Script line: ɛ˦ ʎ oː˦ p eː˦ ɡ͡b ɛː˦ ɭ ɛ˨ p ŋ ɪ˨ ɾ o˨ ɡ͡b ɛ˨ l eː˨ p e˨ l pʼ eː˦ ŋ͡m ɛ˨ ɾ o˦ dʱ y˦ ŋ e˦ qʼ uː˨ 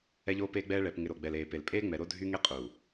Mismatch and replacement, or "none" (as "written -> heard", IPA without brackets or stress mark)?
none